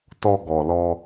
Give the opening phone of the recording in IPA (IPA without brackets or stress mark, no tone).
t